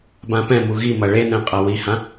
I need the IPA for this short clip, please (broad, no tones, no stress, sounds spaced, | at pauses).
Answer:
b ã p ɛ̃ m u ɣ i m ɐ ɭ e n ɛ̃ qʼ ɐ w i h ã